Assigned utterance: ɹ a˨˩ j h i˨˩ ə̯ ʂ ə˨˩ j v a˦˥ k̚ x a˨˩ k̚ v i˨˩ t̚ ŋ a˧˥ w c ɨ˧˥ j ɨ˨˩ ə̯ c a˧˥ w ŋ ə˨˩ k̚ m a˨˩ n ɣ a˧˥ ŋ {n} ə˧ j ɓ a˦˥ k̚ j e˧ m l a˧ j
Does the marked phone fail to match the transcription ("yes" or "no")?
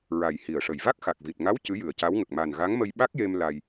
yes